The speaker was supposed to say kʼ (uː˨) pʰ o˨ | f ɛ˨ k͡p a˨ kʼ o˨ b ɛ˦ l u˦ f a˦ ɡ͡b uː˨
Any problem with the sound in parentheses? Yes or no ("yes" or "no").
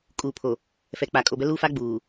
no